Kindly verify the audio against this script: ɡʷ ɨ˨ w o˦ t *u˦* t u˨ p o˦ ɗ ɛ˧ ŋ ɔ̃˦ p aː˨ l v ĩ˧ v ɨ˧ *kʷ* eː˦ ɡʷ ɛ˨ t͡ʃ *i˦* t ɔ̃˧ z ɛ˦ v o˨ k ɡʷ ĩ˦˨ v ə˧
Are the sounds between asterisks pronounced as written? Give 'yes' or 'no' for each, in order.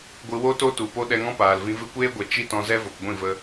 no, yes, yes

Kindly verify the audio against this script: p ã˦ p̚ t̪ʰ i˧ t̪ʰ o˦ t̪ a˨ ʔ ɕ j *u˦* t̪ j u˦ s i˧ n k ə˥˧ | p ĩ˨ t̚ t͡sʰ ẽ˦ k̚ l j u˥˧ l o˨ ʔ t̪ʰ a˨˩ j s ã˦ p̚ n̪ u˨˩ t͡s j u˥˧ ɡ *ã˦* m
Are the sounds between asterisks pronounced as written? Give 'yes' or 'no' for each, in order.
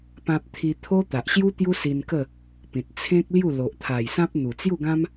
yes, yes

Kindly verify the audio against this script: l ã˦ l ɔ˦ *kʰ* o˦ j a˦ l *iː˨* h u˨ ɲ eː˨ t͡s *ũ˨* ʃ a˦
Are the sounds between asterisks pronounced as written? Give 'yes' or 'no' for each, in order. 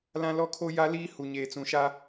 yes, no, yes

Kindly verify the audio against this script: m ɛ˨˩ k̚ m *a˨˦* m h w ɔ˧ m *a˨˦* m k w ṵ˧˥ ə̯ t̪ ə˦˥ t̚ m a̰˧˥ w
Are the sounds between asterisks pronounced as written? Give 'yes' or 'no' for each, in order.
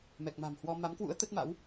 no, yes

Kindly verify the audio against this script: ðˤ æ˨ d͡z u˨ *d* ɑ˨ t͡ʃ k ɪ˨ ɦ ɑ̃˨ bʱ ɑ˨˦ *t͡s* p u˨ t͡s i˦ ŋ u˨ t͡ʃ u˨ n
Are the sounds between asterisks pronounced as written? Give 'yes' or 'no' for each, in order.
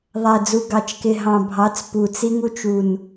no, yes

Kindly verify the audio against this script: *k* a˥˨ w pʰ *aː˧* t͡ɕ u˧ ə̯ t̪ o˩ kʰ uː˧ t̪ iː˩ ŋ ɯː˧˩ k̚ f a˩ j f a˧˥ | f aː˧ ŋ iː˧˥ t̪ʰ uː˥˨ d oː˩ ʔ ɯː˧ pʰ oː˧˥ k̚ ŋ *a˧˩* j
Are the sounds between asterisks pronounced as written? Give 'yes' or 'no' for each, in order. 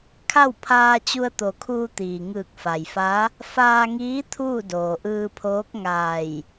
no, yes, no

